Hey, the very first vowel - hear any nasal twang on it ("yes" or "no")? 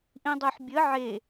yes